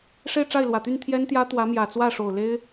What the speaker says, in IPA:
ʂ e˥˧ ɪ̯ ʈ͡ʂ a˥˩ ɪ̯ l w ä˨˩ t̪ y˥˩ n t̪ʰ j ɛ˥ n t̪ j ä˥ t̪ w ä˧˥ m j ä˨˩ t͡s w ä˥˩ ʂ o˨˩ ʊ̯ l e˥ ɪ̯

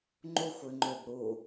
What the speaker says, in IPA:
ŋ͡ǃ u xʷ y ŋ͡ǃ ø b ɾ u

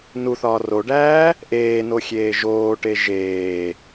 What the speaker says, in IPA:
n u θ ɒː r o ɖ æː | ʔ eː n o xʲ eː ʒ oː ʈ e ʒ eː

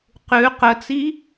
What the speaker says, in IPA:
q ʉ q ə t͡s i

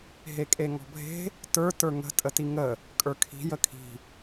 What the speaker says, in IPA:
ɦ e kʼ e ŋ ɔ̤ bʱ e̤ | t ə˞ t ə˞ ŋ ə̤ tʼ ə t i ŋ ə | kʼ ə˞ kʰ i̤ j ə kʰ i̤

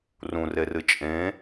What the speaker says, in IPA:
r ũ r e r ɨ t͡ʃʼ ẽ

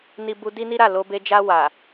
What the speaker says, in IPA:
n i˧ b u˧ d i˦ n i˦ ɾ a˦˨ l o˧ b e˧ d͡ʒ a˧ w a˨

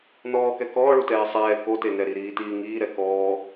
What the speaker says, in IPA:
n ɔː k ɛ k ɔː ɭ u t ɛː sˤ ɛː k o t e n ɛ ɾ i ɾ iː t iː ŋ iː ɾ ɛ k ɔː

